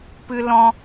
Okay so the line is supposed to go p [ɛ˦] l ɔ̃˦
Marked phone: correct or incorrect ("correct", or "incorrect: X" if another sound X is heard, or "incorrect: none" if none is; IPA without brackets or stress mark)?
incorrect: ɨ˦